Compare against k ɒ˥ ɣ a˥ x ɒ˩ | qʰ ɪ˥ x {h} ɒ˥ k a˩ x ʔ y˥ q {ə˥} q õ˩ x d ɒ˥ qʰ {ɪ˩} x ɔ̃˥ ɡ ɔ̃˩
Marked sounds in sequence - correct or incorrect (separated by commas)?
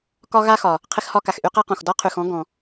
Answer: correct, incorrect, incorrect